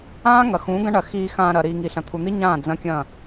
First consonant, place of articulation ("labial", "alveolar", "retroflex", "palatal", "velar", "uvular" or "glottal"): velar